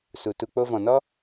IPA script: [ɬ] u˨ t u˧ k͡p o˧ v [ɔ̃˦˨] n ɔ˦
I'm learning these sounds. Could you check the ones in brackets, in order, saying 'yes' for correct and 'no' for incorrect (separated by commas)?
no, no